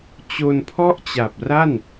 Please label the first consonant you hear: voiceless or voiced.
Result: voiceless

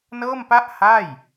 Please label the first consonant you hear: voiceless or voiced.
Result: voiced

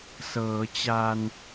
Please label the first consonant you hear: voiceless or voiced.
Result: voiceless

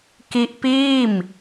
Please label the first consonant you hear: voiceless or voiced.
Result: voiceless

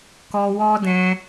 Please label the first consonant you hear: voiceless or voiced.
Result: voiceless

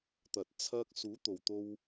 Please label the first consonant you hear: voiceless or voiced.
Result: voiceless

